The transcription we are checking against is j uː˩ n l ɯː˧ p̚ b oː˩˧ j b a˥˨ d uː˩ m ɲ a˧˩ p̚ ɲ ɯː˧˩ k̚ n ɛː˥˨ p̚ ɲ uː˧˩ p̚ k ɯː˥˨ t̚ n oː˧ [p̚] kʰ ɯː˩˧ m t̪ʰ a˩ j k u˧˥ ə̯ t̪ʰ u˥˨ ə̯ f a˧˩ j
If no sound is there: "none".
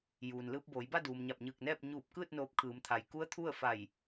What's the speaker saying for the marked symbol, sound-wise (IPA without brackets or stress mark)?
p̚